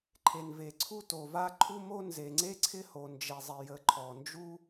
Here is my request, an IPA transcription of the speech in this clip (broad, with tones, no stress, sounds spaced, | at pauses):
ǃʰ e˩ n v e˩ ǀʰ u˥ t o˩ v a˥ ǃʰ u˥ m o˥ n z e˩ ŋ͡ǀ e˥ ǀʰ ɪ˥ h o˩ n d͡ʒ e˩ zˤ ɪ˩ j ə˩ ǃʰ ɔ˩ n d͡ʒ u˥